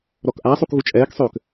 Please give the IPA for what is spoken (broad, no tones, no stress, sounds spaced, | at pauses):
ɾ ɔ k ʔ a sˤ u k ɣ u t͡ʃʼ ɛː k sˤ øː k